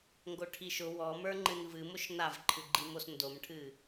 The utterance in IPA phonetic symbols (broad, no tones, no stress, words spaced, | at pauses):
ŋɡoʈʰiʃʊ wɔmə˞ŋ͡ǃɨn vɨ mʊʃnavǃʰɨɡ͡ǃi mosndomʈʰɨ